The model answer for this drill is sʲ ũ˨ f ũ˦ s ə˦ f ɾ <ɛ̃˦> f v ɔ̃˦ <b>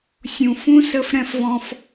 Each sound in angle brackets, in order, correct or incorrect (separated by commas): correct, incorrect